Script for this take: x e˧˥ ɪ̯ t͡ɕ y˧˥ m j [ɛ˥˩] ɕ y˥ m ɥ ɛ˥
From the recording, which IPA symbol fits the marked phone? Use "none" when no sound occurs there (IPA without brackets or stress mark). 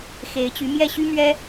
ɛ˥˩